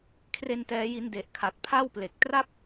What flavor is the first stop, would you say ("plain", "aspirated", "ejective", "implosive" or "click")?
aspirated